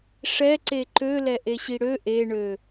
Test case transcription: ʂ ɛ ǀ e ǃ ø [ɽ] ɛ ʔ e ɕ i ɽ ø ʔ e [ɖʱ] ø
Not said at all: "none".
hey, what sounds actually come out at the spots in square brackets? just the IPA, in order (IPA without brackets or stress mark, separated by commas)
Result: l, ɳ